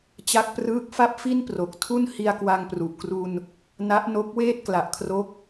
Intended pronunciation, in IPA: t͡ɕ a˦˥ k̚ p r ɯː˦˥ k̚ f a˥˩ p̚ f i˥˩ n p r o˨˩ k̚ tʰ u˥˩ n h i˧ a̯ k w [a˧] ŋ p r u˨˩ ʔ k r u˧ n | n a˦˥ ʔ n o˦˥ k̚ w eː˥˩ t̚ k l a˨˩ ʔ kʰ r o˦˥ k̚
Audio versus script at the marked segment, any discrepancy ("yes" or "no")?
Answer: no